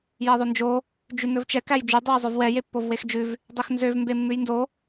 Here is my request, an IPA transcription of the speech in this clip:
jɛðˤønd͡ʒo | d͡ʒʉnɵvt͡ʃɛ kæjd͡ʒʉ dˤøjzˤœvwɛ jepːovwexd͡ʒʉv | dˤexnzøv mbemːʉjndo

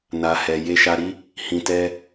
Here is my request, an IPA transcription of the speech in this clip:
na˨hɛ˨ je˧ʃa˧ɾi˦ | hĩ˨tɛ˧

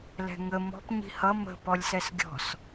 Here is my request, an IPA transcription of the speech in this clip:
lɛ̤ŋə mɔ̤p ɲi̤hʌ mə̤ pɔlʲsɛsɡʲɔ̤s

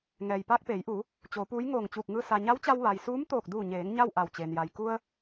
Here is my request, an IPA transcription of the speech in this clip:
ŋɛː˩jpaː˧k̚peː˩˧jʔuː˩˧ | t͡ɕoː˩˧puː˧˥j ŋoː˧˩ŋ t͡ɕuː˧˩k̚ŋɯː˧ sa˩ ɲa˧˥wt͡ɕa˧w ʋa˩j suː˧˥mt̪oː˧˩k̚duː˧˩ɲeː˩˧ŋ ɲa˥˨w ʔa˧˩wt͡ɕeː˩nja˩j ku˧ə̯

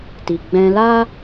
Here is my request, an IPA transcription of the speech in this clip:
ti˧ ɡ͡bɛ̃˧la˦

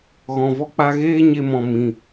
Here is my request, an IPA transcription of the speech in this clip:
ɣɔ̃˨vɔ˧k͡pa˧ɣeː˦ ɲe˧ mɔ̃˨mĩ˨

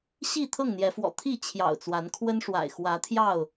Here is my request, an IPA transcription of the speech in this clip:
ɕi˥˨ t̪ʰɤ˥˨ŋn̪jɛ˨˦fwɔ̰˨˩ t̪ʰi˥˨ t͡ɕʰjɑ̰˨˩ʊ̯t͡swa˨˦nkʰwə˦nʂwa̰˨˩ɪ̯ xwä˨˦ t̪ʰjɑ˥˨ʊ̯

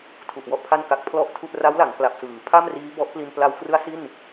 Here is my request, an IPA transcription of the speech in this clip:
tʰu˨˩ʔwɔ˥˩ʔpʰa˥˩n ka˨˩k̚pʰlɔ˦˥ʔ tʰu˥˩ʔ ra˦˥wla˩˦ŋ kla˨˩p̚sɯː˩˦pʰa˥˩mriː˦˥ bɔ˦˥ʔpli˧n pla˧wkrɯ˦˥a̯ si˥˩n

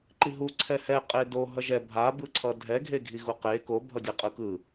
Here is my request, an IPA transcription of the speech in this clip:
ǃiɦu ǀʰɛhɛ qʼedo ɦʌʒɛ bʱabɯǀʰʌ dʱɛɡʱeɡʱi ɣuqe kobʱʌdʲe qʼɯkɯ

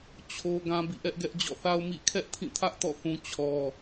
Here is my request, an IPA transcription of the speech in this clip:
t͡ɕʰo˦ ɡã˦bḭ˦˨ʔɛ˦ʔɡɛ˦ʔ d͡ʑɔ̰˦˨θa˦ʊ̯ mḭ˦˨ kʰɛ˦ʔtʰĩ˦˨tʰä˦ʔtɔ̰˦˨ θũ˦ t͡ɕʰɔ˦

